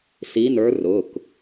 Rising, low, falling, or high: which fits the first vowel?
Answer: rising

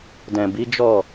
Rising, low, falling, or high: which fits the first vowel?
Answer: low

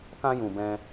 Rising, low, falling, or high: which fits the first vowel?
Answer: high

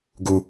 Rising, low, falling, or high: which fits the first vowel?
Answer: high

